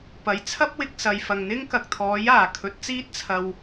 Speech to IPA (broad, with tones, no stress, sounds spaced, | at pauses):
p ɐ˨˥ j t͡sʰ ɐ˥ p̚ w ɪ˧ k̚ s ɐ˨ j f ɐ˨ ŋ n̪ ɪ˥ ŋ k ɐ˨ k̚ t̪ʰ ɔː˨˥ j aː˨˩ kʰ ɵ˨˥ t̚ t͡s iː˥ t̚ t͡sʰ ɐ˧ w